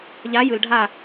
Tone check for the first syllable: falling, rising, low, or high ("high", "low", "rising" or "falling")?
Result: rising